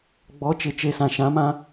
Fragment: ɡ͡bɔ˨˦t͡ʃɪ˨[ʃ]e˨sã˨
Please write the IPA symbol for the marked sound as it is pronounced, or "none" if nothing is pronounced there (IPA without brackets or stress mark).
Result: t͡ʃ